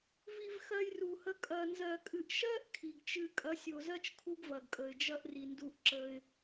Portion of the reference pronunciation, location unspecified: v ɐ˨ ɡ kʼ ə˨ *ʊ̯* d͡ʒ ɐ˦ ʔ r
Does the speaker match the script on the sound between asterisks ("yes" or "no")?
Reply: no